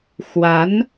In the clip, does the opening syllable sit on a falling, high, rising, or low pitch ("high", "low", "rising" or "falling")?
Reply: rising